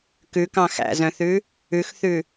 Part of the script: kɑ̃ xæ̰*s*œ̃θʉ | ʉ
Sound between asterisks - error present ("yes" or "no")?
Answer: yes